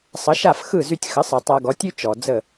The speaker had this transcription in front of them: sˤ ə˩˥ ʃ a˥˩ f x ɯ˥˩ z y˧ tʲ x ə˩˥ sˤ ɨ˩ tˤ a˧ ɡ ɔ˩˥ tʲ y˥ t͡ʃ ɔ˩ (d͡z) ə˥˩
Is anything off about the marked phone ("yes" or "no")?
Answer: no